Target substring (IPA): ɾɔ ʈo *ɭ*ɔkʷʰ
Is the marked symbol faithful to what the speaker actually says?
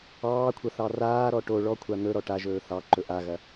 yes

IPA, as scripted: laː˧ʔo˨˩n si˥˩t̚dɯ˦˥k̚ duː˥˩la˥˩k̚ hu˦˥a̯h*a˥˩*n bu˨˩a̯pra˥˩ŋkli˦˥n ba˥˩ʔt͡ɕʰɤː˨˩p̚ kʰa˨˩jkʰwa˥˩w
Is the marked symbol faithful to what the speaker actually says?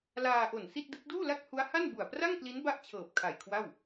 yes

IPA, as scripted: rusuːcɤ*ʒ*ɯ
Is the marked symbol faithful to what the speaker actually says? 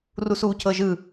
yes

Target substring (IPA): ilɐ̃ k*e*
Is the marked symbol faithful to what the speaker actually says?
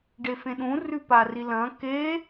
yes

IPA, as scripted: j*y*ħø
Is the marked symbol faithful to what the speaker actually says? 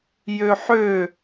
no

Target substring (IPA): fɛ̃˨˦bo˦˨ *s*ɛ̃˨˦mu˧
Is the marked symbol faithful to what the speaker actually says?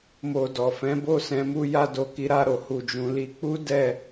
yes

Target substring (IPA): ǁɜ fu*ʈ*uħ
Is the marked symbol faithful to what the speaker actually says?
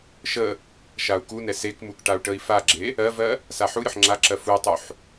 no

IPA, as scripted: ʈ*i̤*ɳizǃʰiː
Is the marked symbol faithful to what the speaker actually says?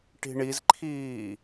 yes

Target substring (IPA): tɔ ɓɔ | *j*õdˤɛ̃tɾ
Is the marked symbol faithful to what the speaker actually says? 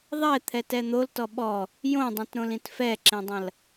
yes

